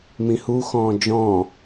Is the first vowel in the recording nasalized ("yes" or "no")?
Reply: yes